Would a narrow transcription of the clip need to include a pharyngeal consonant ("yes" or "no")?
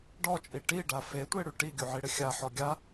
yes